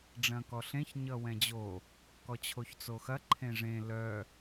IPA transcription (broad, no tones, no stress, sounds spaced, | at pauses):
ɖ͡ʐ ɐ̃ k ɔ ɬ ẽ ç ɲ ʌ w ɛ̃ d͡ʑ o | k ɔ t͡ɕʰ o ç t͡s o x ɐ ǃʰ ẽ ʐ ẽ l œ